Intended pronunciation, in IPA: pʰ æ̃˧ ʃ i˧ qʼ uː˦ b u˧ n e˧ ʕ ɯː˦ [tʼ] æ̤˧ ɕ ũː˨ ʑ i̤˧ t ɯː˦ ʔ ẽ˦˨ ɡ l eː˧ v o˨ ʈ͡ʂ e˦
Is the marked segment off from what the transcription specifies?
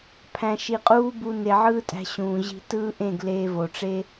no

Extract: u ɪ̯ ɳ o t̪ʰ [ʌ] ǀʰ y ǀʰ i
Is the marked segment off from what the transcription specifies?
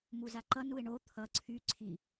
no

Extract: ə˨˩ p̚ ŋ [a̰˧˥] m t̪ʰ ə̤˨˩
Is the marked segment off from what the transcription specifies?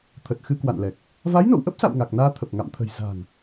yes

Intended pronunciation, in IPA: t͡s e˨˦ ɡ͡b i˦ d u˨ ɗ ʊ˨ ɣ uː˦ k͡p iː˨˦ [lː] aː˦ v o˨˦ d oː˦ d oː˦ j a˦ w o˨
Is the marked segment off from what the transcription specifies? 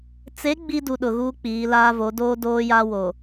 yes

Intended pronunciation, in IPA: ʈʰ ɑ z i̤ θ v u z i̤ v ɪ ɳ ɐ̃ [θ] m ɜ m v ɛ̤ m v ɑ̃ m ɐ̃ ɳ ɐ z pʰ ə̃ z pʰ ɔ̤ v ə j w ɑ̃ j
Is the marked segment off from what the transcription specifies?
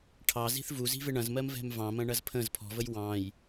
yes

